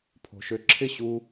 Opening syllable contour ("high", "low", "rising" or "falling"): low